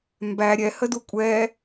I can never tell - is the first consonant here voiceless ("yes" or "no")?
no